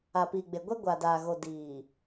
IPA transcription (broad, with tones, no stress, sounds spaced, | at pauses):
a˨ p iː˨ ɡ͡b e˨ ɡʷ ɛ˦ ɡʷ a˨ d aː˨ ɣ o˨ d iː˨